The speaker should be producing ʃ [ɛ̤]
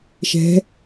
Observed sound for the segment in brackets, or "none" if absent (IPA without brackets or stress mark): ɛ̤